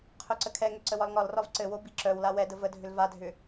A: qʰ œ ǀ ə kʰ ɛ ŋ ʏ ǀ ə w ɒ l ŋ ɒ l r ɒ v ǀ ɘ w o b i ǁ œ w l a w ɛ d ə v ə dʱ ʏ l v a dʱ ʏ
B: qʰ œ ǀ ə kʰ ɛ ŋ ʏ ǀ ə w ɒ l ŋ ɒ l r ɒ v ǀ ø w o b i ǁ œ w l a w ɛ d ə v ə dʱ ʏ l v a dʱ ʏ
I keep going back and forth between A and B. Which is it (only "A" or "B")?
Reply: A